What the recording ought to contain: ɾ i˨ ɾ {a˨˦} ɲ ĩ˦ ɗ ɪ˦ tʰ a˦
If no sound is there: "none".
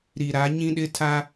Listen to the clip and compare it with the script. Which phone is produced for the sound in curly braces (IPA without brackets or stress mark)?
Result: a˨˦